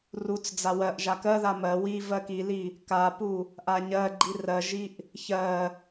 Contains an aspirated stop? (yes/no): no